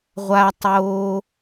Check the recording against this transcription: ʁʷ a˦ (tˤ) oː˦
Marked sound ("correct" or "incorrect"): correct